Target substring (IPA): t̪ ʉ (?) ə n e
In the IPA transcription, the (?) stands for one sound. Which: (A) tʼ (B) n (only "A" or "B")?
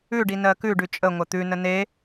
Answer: B